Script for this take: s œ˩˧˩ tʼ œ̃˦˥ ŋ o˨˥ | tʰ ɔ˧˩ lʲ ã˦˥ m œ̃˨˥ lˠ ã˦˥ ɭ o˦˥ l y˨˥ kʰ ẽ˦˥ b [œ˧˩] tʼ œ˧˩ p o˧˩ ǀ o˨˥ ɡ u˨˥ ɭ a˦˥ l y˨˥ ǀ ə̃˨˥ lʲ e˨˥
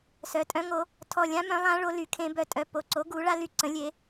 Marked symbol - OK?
yes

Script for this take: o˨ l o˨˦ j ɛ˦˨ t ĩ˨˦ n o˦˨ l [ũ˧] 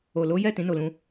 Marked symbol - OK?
yes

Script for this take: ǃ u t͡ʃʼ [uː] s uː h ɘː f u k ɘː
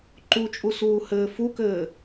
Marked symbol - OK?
no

